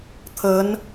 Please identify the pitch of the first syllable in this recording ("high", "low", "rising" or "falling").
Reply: rising